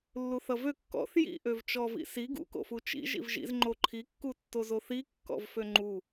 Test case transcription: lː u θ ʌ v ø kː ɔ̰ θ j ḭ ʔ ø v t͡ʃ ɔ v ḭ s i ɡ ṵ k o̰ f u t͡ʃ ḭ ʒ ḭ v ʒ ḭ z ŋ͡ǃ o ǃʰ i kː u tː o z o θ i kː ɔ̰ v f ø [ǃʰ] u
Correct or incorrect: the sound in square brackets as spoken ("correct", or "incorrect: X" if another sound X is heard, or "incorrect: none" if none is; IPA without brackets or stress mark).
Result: incorrect: ŋ͡ǃ